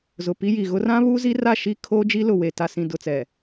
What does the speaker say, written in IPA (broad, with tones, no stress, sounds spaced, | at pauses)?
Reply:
z ʊ˨ p i˦ j i˨ ɣ ʊ˦ r ã˦ β uː˦ z i˦ r a˦˨ ʃ i˦ kʰ oː˦ d͡ʒ i˦ l ʊ˨ w e˨ t a˨ s ĩ˨ d ʊ˨ t͡s ɛ˨